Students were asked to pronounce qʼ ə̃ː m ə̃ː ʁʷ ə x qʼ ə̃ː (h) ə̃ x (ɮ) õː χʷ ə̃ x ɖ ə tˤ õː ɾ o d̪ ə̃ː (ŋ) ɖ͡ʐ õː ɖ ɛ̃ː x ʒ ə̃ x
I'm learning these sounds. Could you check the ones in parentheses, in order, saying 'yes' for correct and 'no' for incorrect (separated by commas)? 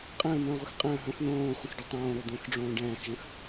no, no, no